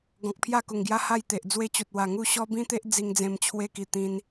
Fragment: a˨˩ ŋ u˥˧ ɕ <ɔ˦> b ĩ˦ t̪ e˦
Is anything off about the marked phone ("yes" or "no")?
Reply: no